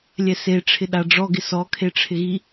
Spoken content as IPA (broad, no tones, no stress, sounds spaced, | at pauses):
lʲ ɛ s e ʈ͡ʂʰ ɪ ɗ a ɖ͡ʐ ɔ ɡ ɪ s ɔ kʰ e ʈ͡ʂʰ ɪ ɣ i